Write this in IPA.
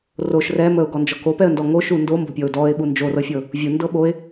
roʃ rɛ məʊ̯ɡɔnd͡ʒɔ kopɛə̯ndɔ ŋoʃu ndombo̤pʲɔʊ̯ dɔɪ̯ɓu nd͡ʒorɤfʲɤ | vʲundɤ ɓoɪ̯

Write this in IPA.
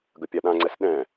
ɡəpʲaɗãŋ͡ǀɛs ɗɛ̃

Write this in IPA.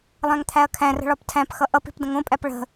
lˠæ̃ŋt̪ʰæɐ̯kʰæ̃rə̤ ɭɒptʰæ̃pxʌ ʔʌpi̤p də̃ŋõpʼæp ɭə̤

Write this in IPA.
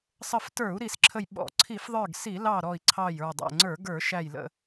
sˤə˧˩ftə˞˧˩˧u̯ ɾi˧˩˧sǁʰə˧˩j ɓɔ̰˧˩˧ǀʰi˧˩˧fðˤə˞˧˩ɡ si˧˩˧lɑ˧˩ ɾɔ˧˩i̯ǀʰɑ˧˩jə˞˧˩ dˤɛ̰˧˩ŋ͡ǀə˞˧˩˧ ɡə˞˧˩˧ʃæ˧˩j lə̰˧˩

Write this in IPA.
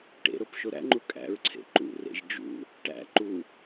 ʈḛɾop ʃoɾæ̰ŋ͡ǃu kʼæ̰ɹǀʰḛ ǃṵrḛʒ d͡ʒṵ | ʈæ̰ ǃu

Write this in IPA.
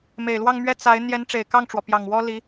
me˨˩ɪ̯lwɑ˥˧ŋmɥɛ˥˩ t͡sa˧˥ɪ̯ n̪jɛ˧˥nʈ͡ʂe˨˩ɪ̯kɑ˥˩ŋʈ͡ʂwɔ˩ pjɑ˨˩ŋwɔ˥li˧˥

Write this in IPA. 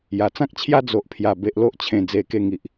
ja˨˩t͡sã˦k̚t͡ɕʰja˦ d͡zo˨ʔpʰja˨˩ be˨ʔlo˦ʔt͡ɕʰẽ˨˩ d͡ze˧ke˥˧ŋi˨ʔ

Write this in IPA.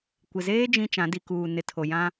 kʷɪ˨zeː˦ d͡ʒĩ˦t͡ʃã˨˦ di˨kuː˨ nɪ˨tʰo˨jã˦

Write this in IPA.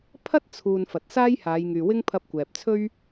pʰɐ˥t̚t͡sʰuː˨n fɐ˨t̚saː˥j haː˨˧jŋyː˨wɪ˥ŋ pʰɐ˧p̚ kʷɛː˨p̚t͡sʰɵ˥ɥ

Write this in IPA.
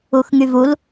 uxŋyvul

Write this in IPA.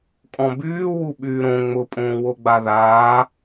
kʼɔ̃byː wuɓyːɾõ ŋ͡mʊpʼõːwo ɡ͡baðaː

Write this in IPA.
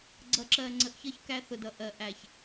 ɡ͡ǀʌ˨ǁɜ˨ŋ͡ǀə˨ʔçʌ˦ç kæ˦θʊ˨dʌ˦˨ ʔɜ˨ʔæ˨ç

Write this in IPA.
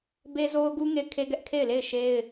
be˦zo˦ʊ̯ɡu˦ ŋe˦˨ɪ̯kʰe˦ɡɛ˦ʔ kʰe˦˨ɪ̯le˦˨ɪ̯ ʃe˦ɪ̯

